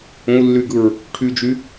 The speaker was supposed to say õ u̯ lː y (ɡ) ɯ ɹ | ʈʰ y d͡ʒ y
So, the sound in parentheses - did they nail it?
yes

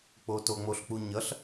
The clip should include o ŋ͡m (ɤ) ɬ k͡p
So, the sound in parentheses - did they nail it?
no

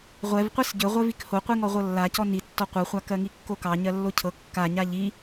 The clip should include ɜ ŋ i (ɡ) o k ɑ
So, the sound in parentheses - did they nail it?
no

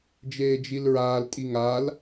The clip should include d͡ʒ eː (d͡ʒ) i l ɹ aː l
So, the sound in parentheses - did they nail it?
yes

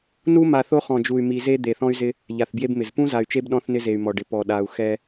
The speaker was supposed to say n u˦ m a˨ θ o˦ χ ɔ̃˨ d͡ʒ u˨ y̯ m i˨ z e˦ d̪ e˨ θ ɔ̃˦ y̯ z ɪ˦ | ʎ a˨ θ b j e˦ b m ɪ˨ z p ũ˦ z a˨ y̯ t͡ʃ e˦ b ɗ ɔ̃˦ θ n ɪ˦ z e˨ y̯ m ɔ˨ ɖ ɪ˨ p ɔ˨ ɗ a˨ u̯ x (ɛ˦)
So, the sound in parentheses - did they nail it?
yes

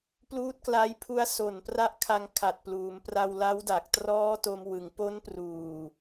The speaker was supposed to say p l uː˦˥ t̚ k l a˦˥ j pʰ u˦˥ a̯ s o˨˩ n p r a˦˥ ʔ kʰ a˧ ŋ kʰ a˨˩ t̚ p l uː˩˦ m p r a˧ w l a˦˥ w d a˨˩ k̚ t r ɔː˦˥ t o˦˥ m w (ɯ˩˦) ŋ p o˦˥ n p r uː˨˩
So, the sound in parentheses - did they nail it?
yes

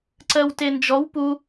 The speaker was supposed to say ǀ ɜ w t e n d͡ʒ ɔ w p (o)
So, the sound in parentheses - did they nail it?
no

